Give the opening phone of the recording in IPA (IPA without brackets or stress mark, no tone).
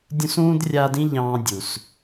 dʲ